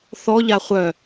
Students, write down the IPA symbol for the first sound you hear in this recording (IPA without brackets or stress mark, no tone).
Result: θ